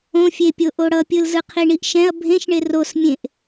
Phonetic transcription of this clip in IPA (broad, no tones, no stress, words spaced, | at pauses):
õfʲepʲo ʔoɽʌpʲɯlzɯ qʰiɳiʔʃɛ̃ɐ̯ bʱẽʃɳe rosmʲẽʔ